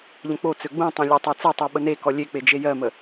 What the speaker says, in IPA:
ʎ ə̃ k͡p o t͡s ø ɡ͡b ũ tˤ ẽ lʲ ɜ tˤ e t͡s ɛ tˤ ø ɓ ə n e k ɔ lʲ e k͡p e d͡ʒ e j ɜ m ə

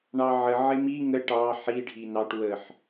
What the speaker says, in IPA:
ɳ ɑ ʕ ə ʕ ɪ m i ŋ ə ʈ ɑ ħ i ɖʱ i n ɑ ʈ w ə ħ

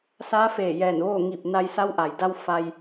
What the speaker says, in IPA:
s aː˧˥ f eː˧˩ j ɛː˧˩ n ʋ oː˥˨ ŋ i˧˩ p̚ n a˧ j s a˧˥ w ʔ a˩ j d a˧ w f a˧ j

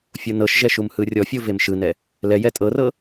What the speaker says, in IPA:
fʲ o n ɤ ʃ ʒ ɛ ʃ u m h ɯ rʲ ɔ fʲ o v e m ʃ ɯ n ɛ | l ɛ j ɛ tʼ ɤ r ɤ

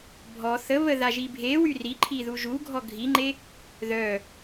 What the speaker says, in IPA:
bʱ ɔ θ ə β ə ð a ʒ i bʱ e w y r i ǃʰ i ð u ʒ u ɡʱ ɔ ɡʱ i ŋ͡ǃ e | ð œ

